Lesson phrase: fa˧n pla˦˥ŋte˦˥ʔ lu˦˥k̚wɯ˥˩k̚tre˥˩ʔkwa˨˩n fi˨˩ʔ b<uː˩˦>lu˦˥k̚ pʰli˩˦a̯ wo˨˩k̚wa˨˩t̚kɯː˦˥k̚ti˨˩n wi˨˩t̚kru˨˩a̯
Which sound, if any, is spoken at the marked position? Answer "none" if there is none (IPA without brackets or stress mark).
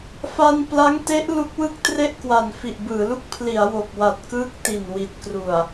ɯː˩˦